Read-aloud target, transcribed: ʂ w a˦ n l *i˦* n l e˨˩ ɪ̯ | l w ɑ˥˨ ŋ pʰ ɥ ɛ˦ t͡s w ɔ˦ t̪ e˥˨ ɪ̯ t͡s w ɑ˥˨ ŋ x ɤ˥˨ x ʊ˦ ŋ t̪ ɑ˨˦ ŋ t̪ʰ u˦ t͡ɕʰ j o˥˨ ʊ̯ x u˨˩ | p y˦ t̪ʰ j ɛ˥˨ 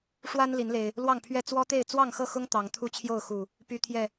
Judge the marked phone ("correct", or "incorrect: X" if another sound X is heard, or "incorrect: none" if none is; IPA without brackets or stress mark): incorrect: i˨˦